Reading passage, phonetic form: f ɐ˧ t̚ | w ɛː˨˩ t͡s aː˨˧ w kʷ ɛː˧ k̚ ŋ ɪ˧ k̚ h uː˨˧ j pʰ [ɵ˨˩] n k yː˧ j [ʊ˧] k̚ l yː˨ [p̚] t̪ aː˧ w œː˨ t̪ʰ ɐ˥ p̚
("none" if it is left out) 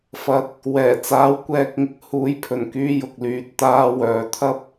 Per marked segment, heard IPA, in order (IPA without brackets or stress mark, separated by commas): ɵ˨˩, ʊ˨, t̚